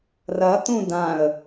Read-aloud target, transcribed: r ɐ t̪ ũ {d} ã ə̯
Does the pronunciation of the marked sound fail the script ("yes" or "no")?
no